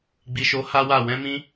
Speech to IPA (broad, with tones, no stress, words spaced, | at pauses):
ɡ͡bi˨ʃo˨˦ ha˦wa˦˨ wɛ̃˧mĩ˧